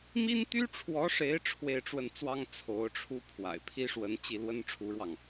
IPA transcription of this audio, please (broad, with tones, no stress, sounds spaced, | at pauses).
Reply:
m i˥ n t̪ y˥ ʈ͡ʂʰ w ɔ˧˥ ʂ e˧˥ ɪ̯ ʈ͡ʂʰ w e˥˧ ɪ̯ ʈ͡ʂ w ə˥˩ n t͡s w ɑ˥ ŋ t͡sʰ o˧˥ ʊ̯ ʈ͡ʂʰ u˥ pʰ w a̰˨˩ ɪ̯ pʰ i˥ ʂ w ə˧˥ n t͡ɕ i˥˩ l w ə˥ n ʈ͡ʂʰ u˧˥ ɻ w ɑ˥˩ ŋ